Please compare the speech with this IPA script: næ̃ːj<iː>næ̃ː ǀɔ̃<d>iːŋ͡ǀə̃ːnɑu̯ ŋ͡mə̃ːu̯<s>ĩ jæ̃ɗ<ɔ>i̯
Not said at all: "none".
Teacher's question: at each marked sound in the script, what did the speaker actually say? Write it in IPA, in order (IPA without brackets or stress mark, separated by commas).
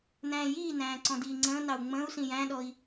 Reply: iː, d, s, ɔ